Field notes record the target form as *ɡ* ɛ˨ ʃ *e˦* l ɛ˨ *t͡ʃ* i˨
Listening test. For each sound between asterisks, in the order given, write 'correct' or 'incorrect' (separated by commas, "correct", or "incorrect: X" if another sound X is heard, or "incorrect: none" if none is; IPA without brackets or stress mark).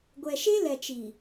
incorrect: ɡʷ, correct, correct